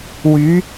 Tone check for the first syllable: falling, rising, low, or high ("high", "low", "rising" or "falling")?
rising